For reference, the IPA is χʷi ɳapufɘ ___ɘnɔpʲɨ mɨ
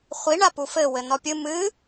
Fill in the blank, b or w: w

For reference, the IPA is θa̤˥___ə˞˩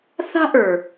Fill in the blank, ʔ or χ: ʔ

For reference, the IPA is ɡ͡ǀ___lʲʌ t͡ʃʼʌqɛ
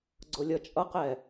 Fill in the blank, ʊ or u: ʊ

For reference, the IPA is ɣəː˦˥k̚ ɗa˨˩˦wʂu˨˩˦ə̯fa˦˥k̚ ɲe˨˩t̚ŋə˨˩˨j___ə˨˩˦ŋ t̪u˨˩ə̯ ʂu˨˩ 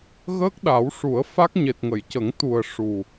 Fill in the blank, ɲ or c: c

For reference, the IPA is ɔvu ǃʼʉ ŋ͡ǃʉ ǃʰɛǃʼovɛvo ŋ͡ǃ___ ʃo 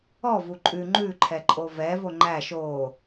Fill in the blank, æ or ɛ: æ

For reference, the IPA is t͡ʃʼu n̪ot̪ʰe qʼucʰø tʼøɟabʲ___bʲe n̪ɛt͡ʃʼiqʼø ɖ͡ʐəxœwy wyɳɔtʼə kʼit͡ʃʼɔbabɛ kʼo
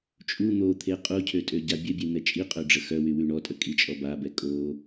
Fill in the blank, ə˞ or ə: ə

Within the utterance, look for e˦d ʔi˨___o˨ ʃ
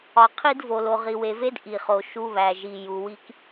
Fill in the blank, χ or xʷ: χ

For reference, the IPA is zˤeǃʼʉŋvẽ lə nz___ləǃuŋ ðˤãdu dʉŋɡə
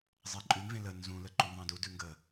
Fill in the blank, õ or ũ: ũ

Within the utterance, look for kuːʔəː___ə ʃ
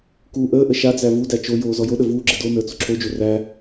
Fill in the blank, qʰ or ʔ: ʔ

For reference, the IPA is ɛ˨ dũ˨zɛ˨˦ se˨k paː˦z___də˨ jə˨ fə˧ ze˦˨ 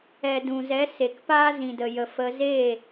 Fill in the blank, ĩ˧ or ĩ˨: ĩ˨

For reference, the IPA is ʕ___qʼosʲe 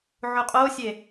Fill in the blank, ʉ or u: u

